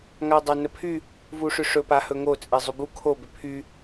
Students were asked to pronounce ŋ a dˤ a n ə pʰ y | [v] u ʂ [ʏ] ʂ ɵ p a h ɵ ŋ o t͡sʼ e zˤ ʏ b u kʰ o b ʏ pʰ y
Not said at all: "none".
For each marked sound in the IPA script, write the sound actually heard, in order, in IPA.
v, ʏ

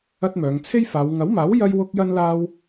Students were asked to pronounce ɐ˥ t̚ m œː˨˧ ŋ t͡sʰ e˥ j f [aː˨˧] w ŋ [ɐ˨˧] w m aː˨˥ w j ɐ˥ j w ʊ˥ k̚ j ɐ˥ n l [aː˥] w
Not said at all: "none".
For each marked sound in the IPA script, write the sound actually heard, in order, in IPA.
aː˨˧, ɐ˨˥, aː˥

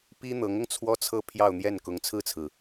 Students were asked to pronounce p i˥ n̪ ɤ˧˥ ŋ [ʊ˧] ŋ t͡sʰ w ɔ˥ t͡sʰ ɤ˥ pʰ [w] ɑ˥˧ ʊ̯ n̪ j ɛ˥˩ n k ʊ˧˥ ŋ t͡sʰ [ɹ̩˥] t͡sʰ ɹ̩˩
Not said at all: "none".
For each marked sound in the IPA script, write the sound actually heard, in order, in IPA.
ʊ˧, j, ɹ̩˥˩

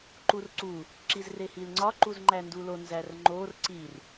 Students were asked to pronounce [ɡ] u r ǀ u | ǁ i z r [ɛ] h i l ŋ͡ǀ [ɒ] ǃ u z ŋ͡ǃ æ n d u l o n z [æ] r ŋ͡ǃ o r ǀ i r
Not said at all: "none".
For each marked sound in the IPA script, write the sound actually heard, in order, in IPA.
ǃ, e, ɒ, æ

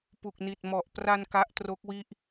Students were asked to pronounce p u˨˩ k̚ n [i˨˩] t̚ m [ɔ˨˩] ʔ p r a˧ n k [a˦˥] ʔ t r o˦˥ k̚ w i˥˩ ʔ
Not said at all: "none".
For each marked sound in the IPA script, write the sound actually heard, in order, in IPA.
i˨˩, ɔ˨˩, a˦˥

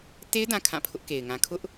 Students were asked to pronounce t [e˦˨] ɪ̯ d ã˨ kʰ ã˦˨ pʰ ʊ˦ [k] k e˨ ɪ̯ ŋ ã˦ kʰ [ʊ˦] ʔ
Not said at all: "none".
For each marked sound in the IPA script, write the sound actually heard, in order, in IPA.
e˦, ʔ, ʊ˦

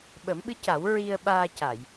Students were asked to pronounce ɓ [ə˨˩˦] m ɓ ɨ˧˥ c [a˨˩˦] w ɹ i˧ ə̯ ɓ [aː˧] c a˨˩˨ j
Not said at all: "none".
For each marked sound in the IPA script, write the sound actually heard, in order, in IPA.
ə˨˩˦, a˨˩˦, aː˧

